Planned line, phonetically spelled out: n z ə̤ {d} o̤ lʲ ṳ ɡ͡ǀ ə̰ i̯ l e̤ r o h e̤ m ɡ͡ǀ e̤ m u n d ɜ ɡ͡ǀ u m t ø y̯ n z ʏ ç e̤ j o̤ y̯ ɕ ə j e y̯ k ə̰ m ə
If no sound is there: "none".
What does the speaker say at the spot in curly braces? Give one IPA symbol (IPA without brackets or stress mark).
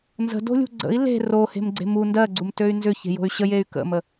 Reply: d